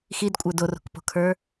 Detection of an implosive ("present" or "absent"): absent